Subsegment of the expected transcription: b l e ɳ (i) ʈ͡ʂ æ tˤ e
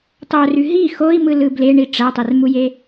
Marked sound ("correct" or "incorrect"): correct